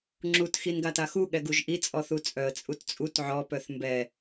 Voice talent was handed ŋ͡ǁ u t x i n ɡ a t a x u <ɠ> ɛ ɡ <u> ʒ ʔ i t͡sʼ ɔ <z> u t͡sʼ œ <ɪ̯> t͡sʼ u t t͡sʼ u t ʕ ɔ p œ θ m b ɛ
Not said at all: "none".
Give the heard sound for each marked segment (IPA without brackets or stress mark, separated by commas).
ɠ, u, θ, ə̯